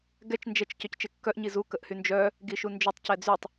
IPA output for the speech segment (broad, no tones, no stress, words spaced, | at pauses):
ɡɛt͡ʃ nd͡ʒɛt͡ʃ cœct͡ʃekːœʔ ɲizu kəʔhynd͡ʒœ | ɡiʃund͡ʒœtˤ cɛd͡zytˤ